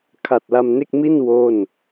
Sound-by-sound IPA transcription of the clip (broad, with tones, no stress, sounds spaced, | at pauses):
kʰ a˨˩ t̚ l a˧ m n e˥˩ k̚ m i˥˩ n w o˥˩ n